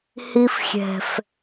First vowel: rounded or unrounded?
unrounded